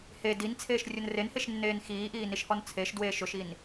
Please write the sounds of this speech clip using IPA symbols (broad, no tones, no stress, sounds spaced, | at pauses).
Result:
h e d i n t͡sʰ eː ʃ rʲ ʊ n r e n h e ʃ nː eː n x iː ʔ iː n i ʃ h ɔ n t͡sʰ e ʃ d w eː ʃ ʊ ʃ i n